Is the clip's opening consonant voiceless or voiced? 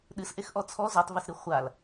voiced